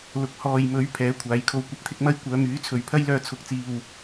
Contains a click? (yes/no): no